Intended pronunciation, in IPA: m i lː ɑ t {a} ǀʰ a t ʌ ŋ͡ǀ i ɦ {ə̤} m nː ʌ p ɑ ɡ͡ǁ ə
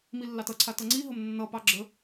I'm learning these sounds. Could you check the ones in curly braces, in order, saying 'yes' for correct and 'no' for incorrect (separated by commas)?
no, no